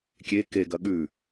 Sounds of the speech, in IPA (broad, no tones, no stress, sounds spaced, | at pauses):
kʲ e k e ɡ ɐ ɠ ʉ